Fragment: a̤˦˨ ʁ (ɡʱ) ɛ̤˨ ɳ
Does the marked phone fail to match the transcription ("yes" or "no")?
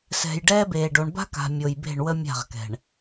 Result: yes